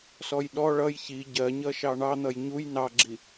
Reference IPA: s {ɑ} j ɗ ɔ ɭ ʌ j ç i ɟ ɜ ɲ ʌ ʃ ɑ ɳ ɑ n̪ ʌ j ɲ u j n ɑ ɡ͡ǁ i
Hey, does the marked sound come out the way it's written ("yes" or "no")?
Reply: no